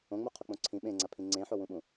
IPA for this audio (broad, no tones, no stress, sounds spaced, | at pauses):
õ ŋ͡m u qʰ o k͡p õ ǀʰ ĩ ɓ ẽ ŋ͡ǀ a pʰ ĩ ŋ͡ǀ ẽ ħ o w ũ ɓ ũ